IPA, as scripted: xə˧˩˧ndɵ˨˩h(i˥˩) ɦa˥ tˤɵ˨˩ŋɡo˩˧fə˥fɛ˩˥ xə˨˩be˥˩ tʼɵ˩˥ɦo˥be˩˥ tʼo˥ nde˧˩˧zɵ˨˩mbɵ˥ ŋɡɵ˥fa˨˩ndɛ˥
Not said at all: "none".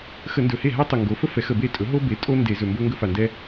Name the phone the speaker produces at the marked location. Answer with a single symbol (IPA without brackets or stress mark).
e˥˩